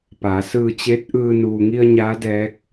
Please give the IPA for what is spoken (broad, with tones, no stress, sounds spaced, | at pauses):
p aː˩˧ s ɯː˧ t͡ɕ e˧˥ t̚ ʔ ɯː˧ n uː˩ ŋ i˧ ə̯ ɲ aː˧˥ d ɛː˧˥ k̚